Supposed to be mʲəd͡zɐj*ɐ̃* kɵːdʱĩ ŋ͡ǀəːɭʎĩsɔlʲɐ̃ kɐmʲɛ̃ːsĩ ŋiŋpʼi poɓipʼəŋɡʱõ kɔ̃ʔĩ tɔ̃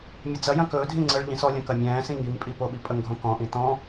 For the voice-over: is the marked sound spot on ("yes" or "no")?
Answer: yes